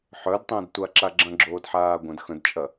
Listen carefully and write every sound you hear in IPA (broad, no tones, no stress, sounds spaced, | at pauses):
ħ œ d tˤ ə̃ː d tʷ a ǁ a ɡ͡ǁ ɐ̃ ɡ͡ǁ oː d ħ aː ɡʷ ɐ̃ d x ə̃ d t͡ʃʼ ɐ